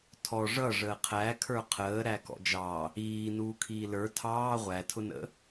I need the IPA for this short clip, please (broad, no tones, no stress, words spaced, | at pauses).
tʰɔ ʐʌʐəː qʰækʰə˞ qʰəː ɾækɔ̰d͡ʒɑ | iː nuːkʰiːlə˞ tʰɑː ʁʷætʰʊnə̰